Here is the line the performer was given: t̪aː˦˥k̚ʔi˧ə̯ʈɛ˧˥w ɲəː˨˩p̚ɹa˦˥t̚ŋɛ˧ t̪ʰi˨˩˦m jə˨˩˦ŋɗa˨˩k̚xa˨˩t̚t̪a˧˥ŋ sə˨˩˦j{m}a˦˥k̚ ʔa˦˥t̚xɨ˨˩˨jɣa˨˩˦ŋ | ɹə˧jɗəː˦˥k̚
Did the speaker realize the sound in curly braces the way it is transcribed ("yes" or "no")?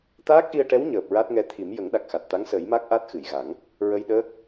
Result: yes